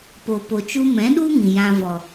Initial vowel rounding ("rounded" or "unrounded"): rounded